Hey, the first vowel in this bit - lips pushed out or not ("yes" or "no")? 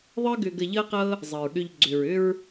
no